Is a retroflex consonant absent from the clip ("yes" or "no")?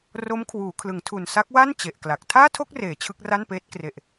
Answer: yes